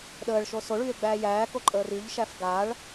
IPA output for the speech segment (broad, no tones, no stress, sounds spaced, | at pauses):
ɗ əː ɭ ʃ o s o ɭ yː e̯ ɡ͡b æː j æː k o ǃʼ əː r y ʎ ʃ æ f ɡ a ɭ